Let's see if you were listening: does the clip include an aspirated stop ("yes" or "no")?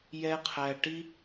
yes